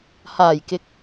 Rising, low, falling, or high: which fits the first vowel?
low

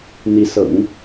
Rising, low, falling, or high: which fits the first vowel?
rising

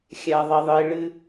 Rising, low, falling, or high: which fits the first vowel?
low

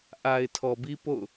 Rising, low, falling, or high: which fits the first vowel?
low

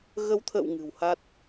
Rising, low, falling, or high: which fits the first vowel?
rising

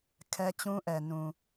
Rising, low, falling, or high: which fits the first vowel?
high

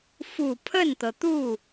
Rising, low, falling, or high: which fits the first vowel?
low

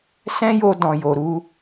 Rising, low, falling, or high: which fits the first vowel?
high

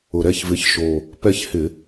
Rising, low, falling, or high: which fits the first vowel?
low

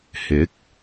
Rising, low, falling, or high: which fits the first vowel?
rising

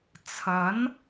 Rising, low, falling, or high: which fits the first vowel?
rising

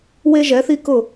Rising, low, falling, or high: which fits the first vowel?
high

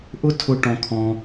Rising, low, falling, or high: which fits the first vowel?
high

